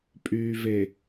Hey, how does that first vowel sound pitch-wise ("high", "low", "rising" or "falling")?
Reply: low